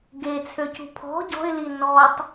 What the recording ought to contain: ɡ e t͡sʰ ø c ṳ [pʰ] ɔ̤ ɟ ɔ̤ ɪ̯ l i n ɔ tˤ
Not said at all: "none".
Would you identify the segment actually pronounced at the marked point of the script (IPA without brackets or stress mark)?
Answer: pʰ